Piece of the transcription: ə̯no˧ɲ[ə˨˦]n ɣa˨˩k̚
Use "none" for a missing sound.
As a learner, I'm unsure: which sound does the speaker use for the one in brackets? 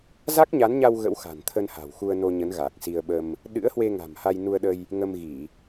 ə˨˦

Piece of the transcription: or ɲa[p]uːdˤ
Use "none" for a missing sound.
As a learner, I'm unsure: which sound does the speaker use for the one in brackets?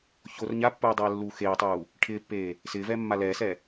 pː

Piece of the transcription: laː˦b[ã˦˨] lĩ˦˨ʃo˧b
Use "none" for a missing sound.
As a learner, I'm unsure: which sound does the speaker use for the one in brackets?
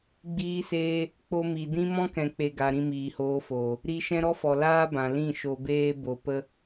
ã˨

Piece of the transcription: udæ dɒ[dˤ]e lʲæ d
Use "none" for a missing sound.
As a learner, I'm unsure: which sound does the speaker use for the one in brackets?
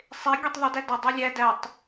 dˤ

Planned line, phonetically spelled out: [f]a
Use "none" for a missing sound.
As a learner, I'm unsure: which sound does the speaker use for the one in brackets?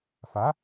f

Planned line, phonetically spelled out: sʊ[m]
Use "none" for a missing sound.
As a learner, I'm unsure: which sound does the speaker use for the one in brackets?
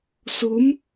m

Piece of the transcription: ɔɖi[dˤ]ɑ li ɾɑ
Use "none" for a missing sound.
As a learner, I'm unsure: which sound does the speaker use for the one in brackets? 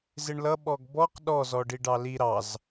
ɖ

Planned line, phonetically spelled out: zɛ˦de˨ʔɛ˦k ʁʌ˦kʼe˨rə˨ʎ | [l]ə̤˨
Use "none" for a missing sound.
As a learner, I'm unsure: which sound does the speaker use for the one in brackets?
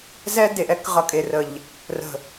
r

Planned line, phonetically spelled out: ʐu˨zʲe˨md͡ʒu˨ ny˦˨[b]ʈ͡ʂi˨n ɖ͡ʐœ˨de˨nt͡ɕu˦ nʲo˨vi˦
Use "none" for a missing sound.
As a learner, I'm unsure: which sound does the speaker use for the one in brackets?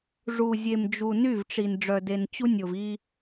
v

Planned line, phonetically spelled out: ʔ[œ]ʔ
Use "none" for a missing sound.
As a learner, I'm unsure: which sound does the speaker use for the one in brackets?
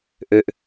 ø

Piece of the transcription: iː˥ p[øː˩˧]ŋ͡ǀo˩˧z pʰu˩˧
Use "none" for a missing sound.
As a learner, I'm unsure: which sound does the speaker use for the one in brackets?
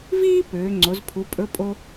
øː˩˧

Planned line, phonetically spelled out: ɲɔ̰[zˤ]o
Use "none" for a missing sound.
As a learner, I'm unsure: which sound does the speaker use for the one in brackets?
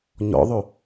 ðˤ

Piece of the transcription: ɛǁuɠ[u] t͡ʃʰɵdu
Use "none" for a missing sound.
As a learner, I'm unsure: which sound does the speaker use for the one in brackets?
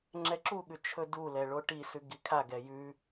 ʉ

